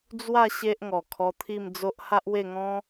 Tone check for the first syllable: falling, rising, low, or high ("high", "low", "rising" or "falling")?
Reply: falling